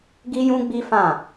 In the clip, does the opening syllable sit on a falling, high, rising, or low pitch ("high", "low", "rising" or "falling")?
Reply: high